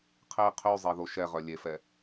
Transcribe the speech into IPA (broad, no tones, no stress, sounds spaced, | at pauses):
qʰ e qʰ y zˤ e ð o ʃ ɛ ʁ œ lʲ e f ɛ